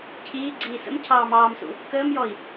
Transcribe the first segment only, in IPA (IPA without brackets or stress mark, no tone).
cʰ